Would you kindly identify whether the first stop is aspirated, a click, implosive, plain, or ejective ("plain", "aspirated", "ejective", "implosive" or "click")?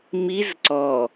click